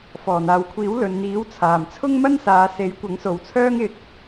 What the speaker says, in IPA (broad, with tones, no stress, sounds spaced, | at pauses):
f ɔː˨˩ n̪ aː˨ w kʷʰ iː˨˥ w l ɵ˨ n n̪ iː˨˥ w t͡sʰ aː˨˩ m t͡sʰ ʊ˥ ŋ m ɐ˥ n s aː˨˧ s e˨˥ j kʷ ɐ˨˥ ŋ s o˨ w t͡sʰ œː˥ ŋ ɪ˧ k̚